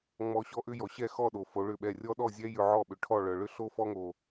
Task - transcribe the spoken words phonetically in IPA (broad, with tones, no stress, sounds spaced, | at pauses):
ŋ͡m ɔ˧ ɕ ɔ˥ ʔ ʏ˥ j ɔ˩ ɕ ɛ˥˩ x ɔ˥˩ ɗ o˩ f o˩˥ ɭ ʏ˥˩ ɓ ɛ˥˩ rʲ ɔ˥ ɗ ɔ˥˩ zʲ ɛ˥ j ʏ˧ ʕ ɔ˥˩ ɓ ʏ˩ ʈʰ ɔ˥˩ ɭ œ˩ ɭ ʏ˥ ɬ o˥ f ɔ˥ ŋ o˩